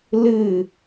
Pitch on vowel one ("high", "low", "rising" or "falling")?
falling